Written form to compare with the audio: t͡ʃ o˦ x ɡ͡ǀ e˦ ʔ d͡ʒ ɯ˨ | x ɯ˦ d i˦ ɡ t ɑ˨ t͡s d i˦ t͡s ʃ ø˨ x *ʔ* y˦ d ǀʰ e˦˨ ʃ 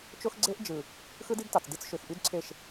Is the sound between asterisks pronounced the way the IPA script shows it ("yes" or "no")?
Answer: yes